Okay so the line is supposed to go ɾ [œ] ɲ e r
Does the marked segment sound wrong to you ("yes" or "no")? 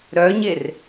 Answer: no